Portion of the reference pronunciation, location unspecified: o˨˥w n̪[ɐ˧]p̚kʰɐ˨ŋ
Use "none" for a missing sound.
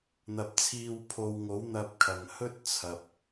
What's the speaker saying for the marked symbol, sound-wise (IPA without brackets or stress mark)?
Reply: ɐ˧